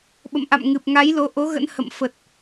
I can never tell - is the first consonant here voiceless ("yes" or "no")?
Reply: no